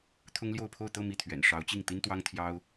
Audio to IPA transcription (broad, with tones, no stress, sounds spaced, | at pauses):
t̪ʰ ʊ˥ ŋ l j o˥˧ ʊ̯ pʰ o˥˧ ʊ̯ t̪ ɤ˥˧ m i˥˩ t̪ʰ ɥ ɛ̰˨˩ n ʂ ɑ˧˥ ʊ̯ t͡ɕ i˥˩ ŋ t̪ i˥ n t̪ w ɑ˥ ŋ t̪ʰ j ɑ˥ ʊ̯